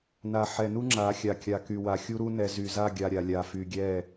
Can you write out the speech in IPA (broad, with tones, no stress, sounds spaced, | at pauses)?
n a˨ ħ ɛ˨ n u˦ ŋ͡ǁ a˨˦ xʲ a˨ kʲ a˨ k y˨ w a˨ xʲ u˦ ɾ u˦ n ɛ˨ z y˨ z a˦˨ ɡʲ a˨ ɾʲ a˨ lʲ a˨ f y˨ ɡʲ ɛ˦˨